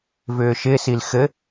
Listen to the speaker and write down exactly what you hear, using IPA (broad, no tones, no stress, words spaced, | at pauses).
vʏːʃɪsil xɘ